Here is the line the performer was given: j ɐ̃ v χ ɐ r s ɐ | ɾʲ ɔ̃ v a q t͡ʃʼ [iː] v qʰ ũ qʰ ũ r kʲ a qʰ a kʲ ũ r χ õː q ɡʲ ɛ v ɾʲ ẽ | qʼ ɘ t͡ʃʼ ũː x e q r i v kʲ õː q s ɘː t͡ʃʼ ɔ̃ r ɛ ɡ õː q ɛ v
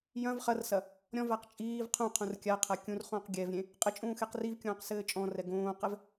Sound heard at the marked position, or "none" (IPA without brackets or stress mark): iː